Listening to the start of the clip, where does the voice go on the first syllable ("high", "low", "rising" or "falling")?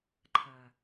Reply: low